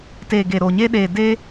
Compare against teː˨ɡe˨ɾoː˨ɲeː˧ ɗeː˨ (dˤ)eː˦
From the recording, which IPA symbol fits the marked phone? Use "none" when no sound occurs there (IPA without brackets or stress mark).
d